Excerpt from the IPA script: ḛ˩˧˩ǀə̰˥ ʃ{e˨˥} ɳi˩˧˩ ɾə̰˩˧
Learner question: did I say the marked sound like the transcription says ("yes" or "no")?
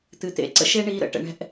no